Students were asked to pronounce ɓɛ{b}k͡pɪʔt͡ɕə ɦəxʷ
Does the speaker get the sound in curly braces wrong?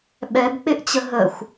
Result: no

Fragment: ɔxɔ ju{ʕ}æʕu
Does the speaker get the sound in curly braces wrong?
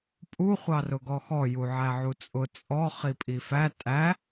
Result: no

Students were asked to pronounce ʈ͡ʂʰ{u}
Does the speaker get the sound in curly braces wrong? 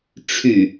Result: yes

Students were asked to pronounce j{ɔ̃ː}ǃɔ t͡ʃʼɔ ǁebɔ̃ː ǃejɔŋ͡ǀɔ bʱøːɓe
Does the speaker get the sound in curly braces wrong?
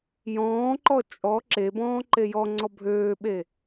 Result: no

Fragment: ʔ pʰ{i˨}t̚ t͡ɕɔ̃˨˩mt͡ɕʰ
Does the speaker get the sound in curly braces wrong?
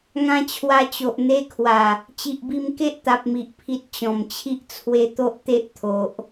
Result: no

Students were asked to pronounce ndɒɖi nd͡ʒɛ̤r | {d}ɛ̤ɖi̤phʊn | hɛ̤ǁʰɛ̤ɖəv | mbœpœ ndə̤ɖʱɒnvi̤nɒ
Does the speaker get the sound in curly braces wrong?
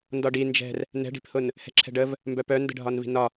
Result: yes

